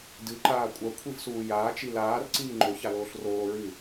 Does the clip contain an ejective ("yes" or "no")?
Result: yes